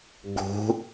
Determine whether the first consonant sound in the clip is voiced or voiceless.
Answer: voiced